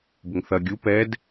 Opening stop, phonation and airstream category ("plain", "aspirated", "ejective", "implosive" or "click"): plain